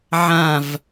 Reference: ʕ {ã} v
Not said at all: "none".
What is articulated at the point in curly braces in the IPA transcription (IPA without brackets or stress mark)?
ã